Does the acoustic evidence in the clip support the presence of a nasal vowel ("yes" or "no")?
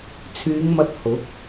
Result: no